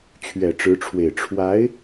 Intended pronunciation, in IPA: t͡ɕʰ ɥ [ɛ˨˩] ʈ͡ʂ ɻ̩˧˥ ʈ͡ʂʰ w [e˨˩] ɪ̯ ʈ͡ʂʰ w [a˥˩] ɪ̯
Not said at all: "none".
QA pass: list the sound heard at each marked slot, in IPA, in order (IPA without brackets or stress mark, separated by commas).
ɛ˨˩, e˨˩, a˧˥